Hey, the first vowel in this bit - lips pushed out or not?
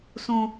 yes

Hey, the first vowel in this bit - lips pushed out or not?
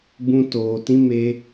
yes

